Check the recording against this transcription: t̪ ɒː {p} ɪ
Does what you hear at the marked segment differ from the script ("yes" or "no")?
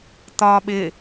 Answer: yes